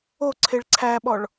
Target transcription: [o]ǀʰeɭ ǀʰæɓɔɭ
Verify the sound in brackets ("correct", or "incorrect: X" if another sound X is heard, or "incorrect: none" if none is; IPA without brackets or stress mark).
correct